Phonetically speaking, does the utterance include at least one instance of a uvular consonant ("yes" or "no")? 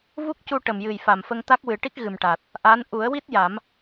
no